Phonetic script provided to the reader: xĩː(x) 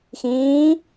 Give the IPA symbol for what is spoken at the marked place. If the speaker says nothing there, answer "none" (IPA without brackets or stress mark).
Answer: none